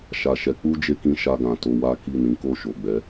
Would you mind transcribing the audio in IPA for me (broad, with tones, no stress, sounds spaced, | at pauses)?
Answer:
ʃ a˨ ʃ ɛ˨˦ k͡p u˦ d͡ʒ e˧ k ĩ˧ ʃ a˧ ɡ ã˨ t o˧ w a˦ k i˦˨ n ĩ˨˦ k o˦˨ ʃ o˨ ɡ͡b ɛ˨˦